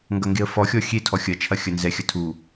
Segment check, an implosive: absent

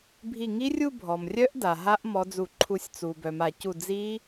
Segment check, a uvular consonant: absent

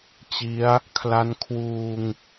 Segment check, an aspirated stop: present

